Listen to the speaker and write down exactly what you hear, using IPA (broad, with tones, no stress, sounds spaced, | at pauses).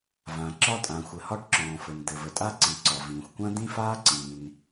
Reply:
v ã˩ ǁ ɒ˥ tʼ ã˩ xʷ ɘ˩ h ɒ˥ ʈ ǁ ɔ̃ː˩ f ɘ˩ n d̪ ɘ˩ v ə˩ tʼ a˥ ǀ i˩ ǀ ɒ˩ v ĩː˩ xʷ kʷ ã˥ d̪ ĩ˥ f aː˥ ǀ ĩː˩ n